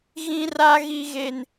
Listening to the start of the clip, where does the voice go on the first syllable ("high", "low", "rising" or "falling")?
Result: high